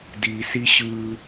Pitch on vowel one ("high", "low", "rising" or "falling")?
low